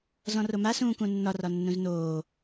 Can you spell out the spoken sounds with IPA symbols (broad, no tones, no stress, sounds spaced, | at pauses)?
z ɔ̃ r o m a s ũː k ũ nː ɒ r ɒ nː ũ z n oː